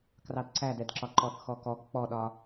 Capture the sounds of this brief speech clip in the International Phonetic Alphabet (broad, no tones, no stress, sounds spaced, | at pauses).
k r ɑ d ǀ æ d ɛ d ǁ ɒ ǃ ɔ θ x ɔ k ɔ ɡ k͡p ɔ ɗ ɒ